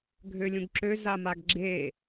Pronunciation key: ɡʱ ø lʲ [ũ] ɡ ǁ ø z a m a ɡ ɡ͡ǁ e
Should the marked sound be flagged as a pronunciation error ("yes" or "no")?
no